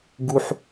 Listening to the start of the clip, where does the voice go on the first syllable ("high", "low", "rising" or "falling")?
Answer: high